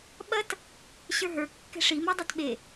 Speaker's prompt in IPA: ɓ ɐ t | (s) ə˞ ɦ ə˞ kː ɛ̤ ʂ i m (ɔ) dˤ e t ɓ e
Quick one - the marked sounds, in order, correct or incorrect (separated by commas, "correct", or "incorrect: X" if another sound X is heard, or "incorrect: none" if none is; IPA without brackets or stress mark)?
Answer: incorrect: ɕ, correct